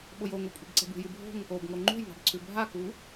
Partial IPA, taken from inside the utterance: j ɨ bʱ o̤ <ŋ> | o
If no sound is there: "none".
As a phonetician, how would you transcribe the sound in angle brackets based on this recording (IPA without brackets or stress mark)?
ŋ